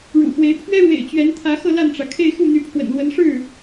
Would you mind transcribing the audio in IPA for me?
ɻ ṵ˨˩ x w e˧˥ ɪ̯ pʰ ɥ ɛ˥ ɻ w ḛ˨˩ ɪ̯ t͡ɕ ɥ ɛ˧˥ n t̪ʰ ä˧˥ x ɤ˥˧ l a˥˩ n ʈ͡ʂ ä˩ kʰ e˥˧ ɪ̯ x u˥˩ n̪ y˧˥ pʰ w ə̰˨˩ n l w ə˧˥ n ʂ ɻ̩˥˩

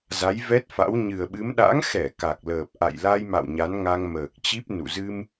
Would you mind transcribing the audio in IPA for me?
z a˨˦ j v ɛ˦˥ t̚ f a̰˧˥ w ɲ ɨ˨˩ ə̯ ɓ ɨ˨˦ m ɗ a̰˧˥ ŋ x ɛ˧˩ k a˨˩ k̚ l əː˨˩ p̚ ʔ a̰˧˨ j l a˧ j m a̰˧˨ w ɲ a˨˦ n ŋ a˧ ŋ m əː˨˩ k̚ t͡ɕ i˦˥ p̚ n ṵ˧˨ z ɨ˧ m

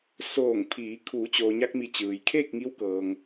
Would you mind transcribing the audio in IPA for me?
s oː˧˩ ŋ pʰ iː˩˧ kʰ uː˩˧ t͡ɕ oː˩ ɲ a˧ k̚ m i˩˧ t͡ɕ ɯː˩ j kʰ eː˥˨ k̚ ŋ i˧˥ w k ɤː˩ ŋ

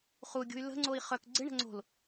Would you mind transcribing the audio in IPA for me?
χ u ɡʲ ṳ y̯ l ə̤ ŋ͡ǀ o i̯ χ œ k ɡ͡ǀ ɪ ɳ ə̤ ŋ͡ǀ o̤ l

